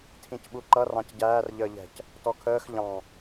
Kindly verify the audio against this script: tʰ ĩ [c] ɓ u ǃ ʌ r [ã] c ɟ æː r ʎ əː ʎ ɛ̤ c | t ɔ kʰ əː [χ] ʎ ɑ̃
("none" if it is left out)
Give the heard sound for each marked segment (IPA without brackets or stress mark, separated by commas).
c, ɑ̃, x